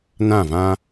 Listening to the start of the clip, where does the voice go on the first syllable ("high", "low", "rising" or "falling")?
falling